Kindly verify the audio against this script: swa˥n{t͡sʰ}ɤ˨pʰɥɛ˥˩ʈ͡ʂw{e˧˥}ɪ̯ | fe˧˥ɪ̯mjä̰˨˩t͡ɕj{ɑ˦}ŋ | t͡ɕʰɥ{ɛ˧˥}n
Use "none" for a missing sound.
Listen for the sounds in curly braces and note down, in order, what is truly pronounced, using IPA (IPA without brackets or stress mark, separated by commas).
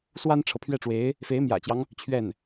ʈ͡ʂʰ, e˧˥, ɑ˦, ɛ˥˩